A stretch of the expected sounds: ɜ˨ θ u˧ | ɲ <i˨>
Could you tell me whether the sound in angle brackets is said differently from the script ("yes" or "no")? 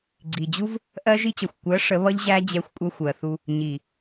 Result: no